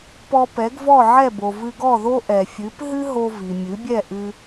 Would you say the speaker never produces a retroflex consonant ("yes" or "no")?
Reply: yes